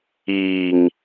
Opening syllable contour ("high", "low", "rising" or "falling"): low